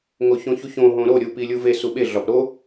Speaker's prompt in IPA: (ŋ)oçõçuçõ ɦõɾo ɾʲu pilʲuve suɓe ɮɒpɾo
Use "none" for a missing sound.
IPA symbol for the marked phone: ŋ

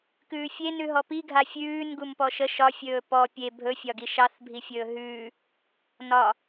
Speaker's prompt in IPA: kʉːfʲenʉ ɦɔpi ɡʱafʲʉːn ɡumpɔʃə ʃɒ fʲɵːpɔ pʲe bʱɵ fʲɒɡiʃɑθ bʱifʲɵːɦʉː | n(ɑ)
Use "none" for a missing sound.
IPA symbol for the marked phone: ɒ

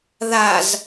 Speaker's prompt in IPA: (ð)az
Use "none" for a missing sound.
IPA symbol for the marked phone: ð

